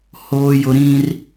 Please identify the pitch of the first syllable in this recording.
low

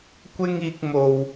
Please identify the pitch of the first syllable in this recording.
high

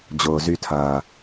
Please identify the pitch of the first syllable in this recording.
low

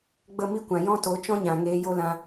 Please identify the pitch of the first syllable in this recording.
falling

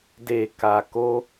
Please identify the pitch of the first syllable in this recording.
low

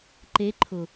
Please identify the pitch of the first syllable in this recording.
rising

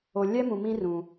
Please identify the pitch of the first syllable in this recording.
low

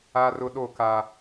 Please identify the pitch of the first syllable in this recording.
high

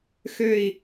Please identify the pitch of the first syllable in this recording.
falling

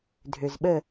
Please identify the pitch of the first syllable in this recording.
low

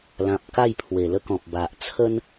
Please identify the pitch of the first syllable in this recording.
low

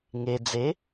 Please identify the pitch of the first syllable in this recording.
low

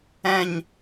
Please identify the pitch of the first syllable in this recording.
falling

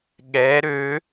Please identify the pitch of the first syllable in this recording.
rising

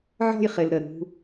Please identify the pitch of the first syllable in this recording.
falling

